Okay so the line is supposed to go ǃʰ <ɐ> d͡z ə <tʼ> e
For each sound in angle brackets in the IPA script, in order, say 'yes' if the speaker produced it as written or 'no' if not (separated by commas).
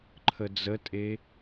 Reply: no, yes